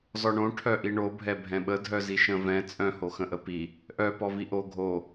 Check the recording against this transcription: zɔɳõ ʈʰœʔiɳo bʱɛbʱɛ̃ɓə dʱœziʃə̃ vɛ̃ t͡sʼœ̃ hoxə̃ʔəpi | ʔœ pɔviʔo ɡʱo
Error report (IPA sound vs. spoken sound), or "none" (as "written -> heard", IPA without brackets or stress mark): none